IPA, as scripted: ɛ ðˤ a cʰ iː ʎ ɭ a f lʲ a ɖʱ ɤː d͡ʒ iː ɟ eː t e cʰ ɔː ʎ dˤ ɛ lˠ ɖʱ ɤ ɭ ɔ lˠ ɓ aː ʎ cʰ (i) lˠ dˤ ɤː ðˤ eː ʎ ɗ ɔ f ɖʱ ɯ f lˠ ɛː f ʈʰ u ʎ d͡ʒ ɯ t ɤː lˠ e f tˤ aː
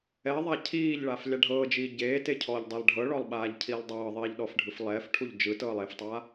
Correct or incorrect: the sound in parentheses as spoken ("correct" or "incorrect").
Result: incorrect